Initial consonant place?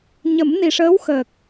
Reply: palatal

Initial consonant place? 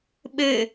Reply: labial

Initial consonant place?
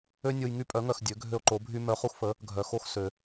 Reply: alveolar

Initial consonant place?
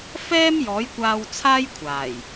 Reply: labial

